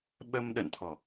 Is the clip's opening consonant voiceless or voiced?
voiced